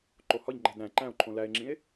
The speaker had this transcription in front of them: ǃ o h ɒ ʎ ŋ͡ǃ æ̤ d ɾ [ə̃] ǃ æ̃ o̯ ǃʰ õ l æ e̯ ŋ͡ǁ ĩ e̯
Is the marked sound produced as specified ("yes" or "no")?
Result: no